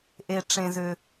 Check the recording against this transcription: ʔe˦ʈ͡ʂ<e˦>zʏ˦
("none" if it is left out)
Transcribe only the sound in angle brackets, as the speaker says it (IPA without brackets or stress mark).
ẽ˦